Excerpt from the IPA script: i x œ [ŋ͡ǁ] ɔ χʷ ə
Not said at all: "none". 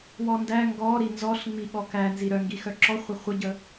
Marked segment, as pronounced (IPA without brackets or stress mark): ǁ